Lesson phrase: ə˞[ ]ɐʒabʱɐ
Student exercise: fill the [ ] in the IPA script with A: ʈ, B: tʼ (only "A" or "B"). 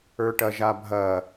A